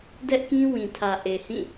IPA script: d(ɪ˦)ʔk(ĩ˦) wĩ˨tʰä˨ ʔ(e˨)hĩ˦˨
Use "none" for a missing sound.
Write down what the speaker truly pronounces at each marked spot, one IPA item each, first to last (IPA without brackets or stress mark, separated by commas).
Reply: ɛ˦, ĩ˦, e˨